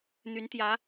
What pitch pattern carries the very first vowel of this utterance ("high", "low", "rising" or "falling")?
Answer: rising